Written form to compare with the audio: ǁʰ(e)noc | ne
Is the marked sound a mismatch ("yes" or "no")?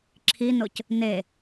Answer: yes